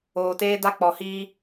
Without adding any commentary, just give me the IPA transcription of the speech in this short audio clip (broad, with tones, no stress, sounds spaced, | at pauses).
oː˨ t eː˦ d a˦ k͡p ɔ˨ h iː˦